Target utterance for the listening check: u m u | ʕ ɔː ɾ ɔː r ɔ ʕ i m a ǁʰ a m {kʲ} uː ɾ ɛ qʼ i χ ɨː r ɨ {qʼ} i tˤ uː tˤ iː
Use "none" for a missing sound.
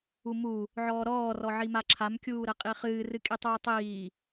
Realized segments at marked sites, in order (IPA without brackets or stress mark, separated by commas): kʲ, kʼ